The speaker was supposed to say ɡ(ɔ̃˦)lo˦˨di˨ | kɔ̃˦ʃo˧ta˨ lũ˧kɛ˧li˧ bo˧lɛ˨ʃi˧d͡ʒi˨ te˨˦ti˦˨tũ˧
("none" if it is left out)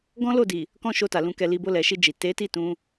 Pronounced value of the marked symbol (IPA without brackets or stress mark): ɔ̃˦